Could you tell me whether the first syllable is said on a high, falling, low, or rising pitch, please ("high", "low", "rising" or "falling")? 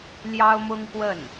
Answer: high